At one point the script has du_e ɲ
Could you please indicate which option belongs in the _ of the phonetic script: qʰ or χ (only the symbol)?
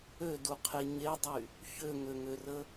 qʰ